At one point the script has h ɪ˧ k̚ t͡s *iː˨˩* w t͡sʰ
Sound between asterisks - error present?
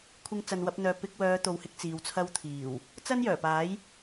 yes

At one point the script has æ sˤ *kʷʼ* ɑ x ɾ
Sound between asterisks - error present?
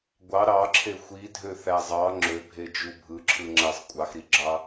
no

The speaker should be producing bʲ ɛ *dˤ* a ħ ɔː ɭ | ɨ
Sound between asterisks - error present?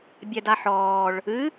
yes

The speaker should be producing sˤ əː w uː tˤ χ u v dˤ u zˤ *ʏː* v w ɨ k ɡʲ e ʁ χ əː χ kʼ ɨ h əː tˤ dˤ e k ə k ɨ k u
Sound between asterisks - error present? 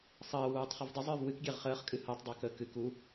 no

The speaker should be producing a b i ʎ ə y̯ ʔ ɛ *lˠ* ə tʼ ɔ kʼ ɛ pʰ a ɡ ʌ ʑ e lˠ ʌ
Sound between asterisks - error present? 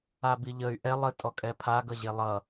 no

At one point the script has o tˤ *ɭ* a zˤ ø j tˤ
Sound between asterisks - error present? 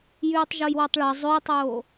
no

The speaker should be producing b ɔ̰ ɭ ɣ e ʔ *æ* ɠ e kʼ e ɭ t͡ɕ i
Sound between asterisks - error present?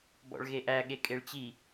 no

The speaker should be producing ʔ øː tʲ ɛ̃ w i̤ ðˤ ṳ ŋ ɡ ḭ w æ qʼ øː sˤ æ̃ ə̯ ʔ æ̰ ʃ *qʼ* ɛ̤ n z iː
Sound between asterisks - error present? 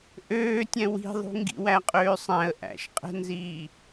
no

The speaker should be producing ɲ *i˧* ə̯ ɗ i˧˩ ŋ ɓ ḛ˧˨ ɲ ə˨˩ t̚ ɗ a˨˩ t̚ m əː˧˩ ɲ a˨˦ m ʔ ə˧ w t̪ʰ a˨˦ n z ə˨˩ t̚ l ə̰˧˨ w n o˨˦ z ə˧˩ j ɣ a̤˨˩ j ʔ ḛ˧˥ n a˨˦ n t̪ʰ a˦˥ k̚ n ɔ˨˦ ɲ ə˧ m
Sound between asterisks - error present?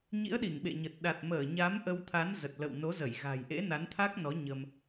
yes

